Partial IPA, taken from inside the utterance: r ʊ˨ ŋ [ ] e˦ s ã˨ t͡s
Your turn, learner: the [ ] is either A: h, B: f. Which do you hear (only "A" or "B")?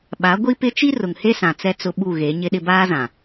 A